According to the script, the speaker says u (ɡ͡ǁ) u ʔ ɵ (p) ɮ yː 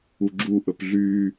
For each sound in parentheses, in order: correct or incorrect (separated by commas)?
correct, correct